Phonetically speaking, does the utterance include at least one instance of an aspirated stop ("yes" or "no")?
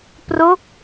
no